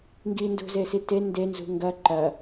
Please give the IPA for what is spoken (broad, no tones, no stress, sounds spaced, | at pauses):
ŋ ɡ i n d ṳ z e s i t e n d e n z ṳ ŋ ɡ ɐ ǃ ɐ